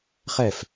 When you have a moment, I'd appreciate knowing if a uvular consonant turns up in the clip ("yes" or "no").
yes